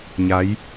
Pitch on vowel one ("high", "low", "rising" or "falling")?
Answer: rising